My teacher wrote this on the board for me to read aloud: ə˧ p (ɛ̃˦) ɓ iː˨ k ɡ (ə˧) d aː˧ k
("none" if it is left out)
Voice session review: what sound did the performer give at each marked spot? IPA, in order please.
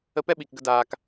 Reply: ɛ˦, ə˧

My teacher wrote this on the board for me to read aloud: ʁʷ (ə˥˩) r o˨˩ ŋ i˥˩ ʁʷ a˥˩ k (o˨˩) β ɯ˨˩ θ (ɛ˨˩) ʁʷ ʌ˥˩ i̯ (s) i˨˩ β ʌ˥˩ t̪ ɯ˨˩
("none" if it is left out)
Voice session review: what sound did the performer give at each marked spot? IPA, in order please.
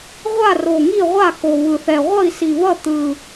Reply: a˥˩, o˨˩, ɛ˨˩, s

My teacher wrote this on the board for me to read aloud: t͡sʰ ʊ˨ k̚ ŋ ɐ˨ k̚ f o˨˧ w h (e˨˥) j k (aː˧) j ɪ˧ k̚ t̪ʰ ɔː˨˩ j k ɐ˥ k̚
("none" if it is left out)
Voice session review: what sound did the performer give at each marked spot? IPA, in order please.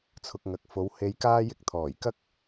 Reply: e˨˧, aː˧

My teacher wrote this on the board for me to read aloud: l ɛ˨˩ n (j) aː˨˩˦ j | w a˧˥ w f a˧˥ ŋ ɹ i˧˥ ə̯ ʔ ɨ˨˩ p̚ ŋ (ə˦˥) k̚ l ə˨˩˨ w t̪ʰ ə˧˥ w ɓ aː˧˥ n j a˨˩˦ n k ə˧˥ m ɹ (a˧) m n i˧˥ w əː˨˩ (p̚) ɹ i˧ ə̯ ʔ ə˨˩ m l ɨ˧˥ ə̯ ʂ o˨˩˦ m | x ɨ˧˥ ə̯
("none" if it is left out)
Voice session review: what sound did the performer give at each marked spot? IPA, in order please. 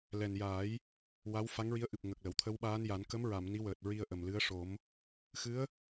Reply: j, ə˨˩, a˨˩˨, t̚

